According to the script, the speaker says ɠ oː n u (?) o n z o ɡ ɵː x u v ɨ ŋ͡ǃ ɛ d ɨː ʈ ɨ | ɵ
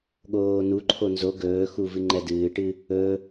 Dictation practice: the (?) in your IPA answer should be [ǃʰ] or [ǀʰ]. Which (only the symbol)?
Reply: ǃʰ